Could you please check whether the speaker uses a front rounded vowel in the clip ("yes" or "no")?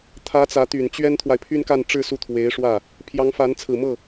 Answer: yes